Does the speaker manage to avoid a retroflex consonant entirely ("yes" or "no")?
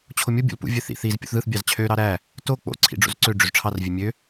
no